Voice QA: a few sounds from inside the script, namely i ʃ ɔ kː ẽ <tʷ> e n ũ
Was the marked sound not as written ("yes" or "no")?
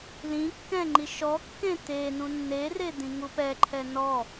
yes